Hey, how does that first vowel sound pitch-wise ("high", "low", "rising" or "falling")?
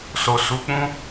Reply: low